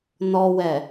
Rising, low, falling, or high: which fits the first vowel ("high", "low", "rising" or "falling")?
low